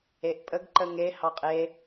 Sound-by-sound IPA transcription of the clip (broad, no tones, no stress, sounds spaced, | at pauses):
e ʔ pʼ ə ɡ ǃ ə ŋ e h ɑ qʼ e